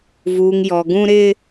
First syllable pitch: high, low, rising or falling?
low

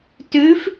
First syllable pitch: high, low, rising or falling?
rising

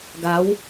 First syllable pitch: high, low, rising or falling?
rising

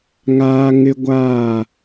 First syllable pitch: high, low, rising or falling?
high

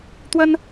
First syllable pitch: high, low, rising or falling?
high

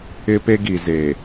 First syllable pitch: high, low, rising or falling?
high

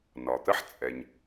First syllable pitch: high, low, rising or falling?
low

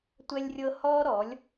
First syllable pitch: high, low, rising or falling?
high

